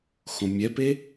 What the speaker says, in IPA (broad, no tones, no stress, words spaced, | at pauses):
xõmʲɛpe